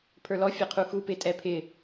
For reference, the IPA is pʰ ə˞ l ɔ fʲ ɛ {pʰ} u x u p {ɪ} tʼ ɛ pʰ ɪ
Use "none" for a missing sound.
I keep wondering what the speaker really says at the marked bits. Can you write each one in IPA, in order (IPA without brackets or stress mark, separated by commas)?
qʰ, ɪ